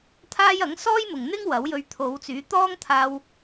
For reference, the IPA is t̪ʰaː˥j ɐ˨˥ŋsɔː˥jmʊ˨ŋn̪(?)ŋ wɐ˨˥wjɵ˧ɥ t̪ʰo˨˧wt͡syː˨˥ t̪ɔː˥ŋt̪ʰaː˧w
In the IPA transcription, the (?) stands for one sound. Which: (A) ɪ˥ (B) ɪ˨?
A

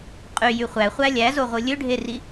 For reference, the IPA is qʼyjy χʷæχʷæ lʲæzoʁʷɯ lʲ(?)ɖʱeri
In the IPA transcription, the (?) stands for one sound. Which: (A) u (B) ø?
B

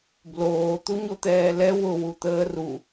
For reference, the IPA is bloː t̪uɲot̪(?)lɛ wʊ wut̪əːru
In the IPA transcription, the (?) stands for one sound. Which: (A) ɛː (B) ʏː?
A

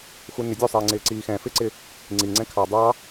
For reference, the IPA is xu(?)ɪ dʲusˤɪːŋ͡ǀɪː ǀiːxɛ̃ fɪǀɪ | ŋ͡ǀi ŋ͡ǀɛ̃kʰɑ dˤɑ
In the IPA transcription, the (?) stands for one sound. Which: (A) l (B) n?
B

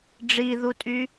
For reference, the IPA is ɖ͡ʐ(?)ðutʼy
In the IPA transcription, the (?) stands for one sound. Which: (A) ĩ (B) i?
B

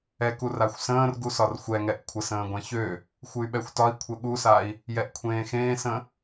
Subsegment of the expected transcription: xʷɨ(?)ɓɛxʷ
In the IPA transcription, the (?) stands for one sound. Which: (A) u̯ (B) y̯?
B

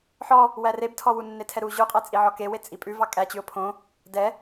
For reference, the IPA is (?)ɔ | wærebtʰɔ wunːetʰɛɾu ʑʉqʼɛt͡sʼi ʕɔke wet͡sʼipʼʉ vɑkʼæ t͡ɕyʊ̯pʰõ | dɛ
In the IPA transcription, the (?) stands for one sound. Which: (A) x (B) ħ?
B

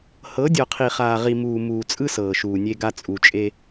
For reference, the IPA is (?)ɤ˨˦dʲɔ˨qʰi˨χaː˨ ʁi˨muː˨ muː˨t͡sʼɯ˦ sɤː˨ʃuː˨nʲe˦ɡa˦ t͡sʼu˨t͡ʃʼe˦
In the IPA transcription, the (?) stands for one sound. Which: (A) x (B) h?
B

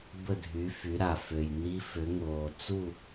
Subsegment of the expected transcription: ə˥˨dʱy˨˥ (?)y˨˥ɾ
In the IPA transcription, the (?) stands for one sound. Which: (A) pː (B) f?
B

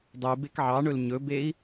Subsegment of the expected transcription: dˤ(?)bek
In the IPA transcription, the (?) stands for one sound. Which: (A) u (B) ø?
A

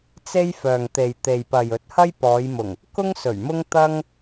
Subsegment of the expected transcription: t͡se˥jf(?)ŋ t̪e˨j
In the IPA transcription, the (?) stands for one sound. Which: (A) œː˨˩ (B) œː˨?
B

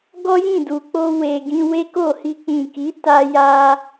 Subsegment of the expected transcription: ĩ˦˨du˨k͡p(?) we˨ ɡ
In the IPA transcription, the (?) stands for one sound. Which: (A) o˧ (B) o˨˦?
A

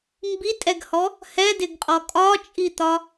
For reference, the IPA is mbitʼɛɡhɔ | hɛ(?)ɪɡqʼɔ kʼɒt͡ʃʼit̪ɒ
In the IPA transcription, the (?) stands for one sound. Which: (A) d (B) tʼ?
A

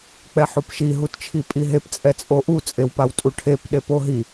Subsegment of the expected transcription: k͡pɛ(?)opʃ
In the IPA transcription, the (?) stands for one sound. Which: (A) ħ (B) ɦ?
A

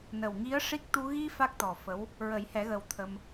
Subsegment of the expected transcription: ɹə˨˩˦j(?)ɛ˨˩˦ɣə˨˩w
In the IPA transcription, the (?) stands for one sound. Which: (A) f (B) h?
B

